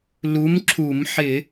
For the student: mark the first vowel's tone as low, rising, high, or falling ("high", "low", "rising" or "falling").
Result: rising